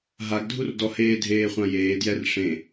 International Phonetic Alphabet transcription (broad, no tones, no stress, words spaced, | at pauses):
ɦaɡdʱurdɔheː dʱeːχʷãjeː djɛrʂẽ